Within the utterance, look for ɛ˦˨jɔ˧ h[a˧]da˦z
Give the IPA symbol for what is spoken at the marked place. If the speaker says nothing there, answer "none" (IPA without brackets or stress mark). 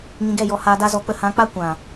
aː˧